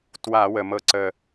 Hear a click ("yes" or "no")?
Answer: yes